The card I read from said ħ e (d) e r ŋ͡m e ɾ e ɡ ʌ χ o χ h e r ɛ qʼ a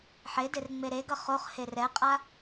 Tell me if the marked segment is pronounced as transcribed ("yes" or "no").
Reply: yes